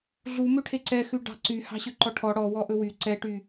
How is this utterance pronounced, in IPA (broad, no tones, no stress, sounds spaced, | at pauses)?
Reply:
ɮ u m ø ʈʰ e ǀ ɛ x ʉ ɖ ɑ̤ ǀ y h ɑ̤ ɕ ø ǃ ɔ ʈʰ ɔ ɽ ɔ w ɔ ʔ ɵ w y ǀ ɛ ʈ y